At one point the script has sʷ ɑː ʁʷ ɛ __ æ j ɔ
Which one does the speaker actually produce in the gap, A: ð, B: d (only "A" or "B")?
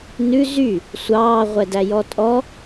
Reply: B